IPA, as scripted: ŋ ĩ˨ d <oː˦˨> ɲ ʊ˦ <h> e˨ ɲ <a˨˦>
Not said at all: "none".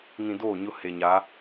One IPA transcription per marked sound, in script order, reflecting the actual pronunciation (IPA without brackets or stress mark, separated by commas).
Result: oː˦˨, h, a˨˦